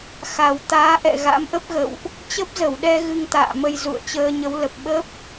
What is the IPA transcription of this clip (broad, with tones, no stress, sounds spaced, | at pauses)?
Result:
x a˨˩ w t̪ aː˨˦ ʔ ɛ̰˧˨ ɣ a̰˧˥ m ʔ ə˦˥ p̚ ɣ ə̰˧˨ w ʔ | t͡ɕ ə˦˥ p̚ z ə˧˩ w ɗ ɛ˧ ɣ ɨ˧ ŋ t̪ a̰ː˧˨ m ə˧ j z ṵ˧˨ ə̯ t͡ɕ əː˧ ɲ ə˨˦ w l ə˨˩ p̚ ɓ ə˦˥ p̚